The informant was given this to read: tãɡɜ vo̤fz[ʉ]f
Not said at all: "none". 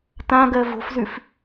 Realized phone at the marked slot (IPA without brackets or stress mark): ʉ